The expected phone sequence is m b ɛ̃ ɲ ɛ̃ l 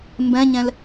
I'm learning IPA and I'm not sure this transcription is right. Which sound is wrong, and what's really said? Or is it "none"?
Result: none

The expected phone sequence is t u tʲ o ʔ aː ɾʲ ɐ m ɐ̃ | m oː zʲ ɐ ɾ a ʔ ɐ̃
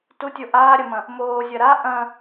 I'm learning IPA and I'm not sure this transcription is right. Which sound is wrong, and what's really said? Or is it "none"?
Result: none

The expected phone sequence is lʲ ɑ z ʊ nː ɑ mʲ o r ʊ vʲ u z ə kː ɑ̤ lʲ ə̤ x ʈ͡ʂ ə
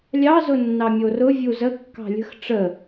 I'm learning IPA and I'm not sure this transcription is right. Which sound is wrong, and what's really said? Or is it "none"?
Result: none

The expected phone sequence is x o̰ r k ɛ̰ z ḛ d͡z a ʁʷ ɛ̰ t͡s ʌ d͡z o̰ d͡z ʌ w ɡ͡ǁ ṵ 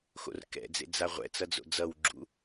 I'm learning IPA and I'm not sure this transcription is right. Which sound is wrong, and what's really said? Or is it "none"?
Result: z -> d͡z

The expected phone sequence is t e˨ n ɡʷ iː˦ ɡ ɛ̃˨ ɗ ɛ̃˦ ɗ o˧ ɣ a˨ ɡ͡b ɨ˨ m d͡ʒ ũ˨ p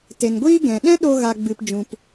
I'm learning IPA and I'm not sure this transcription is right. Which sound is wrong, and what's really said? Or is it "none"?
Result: m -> p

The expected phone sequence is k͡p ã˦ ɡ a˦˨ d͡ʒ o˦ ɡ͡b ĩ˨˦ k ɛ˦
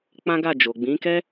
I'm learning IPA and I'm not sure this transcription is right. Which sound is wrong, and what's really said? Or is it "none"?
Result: o˦ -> o˨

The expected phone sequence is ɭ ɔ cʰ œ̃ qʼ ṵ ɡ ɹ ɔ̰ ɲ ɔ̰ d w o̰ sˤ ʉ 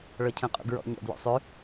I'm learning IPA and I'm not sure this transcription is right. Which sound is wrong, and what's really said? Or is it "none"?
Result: none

